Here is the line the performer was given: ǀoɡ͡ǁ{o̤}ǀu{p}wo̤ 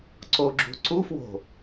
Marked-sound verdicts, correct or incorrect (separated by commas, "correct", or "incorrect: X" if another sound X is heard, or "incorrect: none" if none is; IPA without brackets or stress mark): incorrect: ṳ, incorrect: f